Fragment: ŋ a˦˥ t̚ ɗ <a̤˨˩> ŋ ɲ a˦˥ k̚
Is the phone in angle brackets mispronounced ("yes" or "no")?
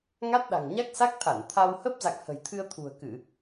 no